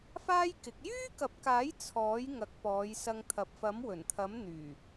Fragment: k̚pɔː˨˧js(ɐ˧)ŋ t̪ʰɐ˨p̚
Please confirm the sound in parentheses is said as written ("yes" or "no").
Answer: yes